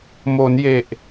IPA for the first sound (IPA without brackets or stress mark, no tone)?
m